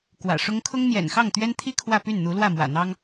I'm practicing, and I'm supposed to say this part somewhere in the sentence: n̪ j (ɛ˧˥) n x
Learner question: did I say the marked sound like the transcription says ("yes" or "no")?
no